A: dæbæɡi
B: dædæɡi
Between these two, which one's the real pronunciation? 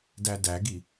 B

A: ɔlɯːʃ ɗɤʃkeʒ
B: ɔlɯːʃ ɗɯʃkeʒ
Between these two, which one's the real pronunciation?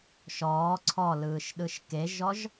B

